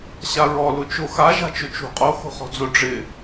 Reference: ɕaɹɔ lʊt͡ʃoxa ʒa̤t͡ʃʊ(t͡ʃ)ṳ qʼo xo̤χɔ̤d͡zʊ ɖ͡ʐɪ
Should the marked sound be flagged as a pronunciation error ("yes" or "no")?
no